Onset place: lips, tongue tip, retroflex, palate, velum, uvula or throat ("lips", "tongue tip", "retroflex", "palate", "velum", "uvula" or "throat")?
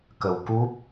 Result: velum